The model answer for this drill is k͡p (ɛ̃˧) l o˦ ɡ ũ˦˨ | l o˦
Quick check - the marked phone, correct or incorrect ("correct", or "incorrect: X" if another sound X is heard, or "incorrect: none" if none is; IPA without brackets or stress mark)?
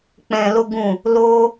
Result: correct